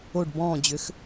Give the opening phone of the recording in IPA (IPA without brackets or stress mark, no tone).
o